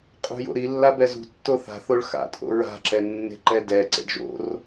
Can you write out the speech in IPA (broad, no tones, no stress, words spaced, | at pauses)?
qʼṳjo̰ɾi lːabɛzṳtːo θa̤θoɭ xa̰tʼo̰ ɹa̤ǁɛ nːe̤ǃɛdɛ ǀḛɖʒo̰r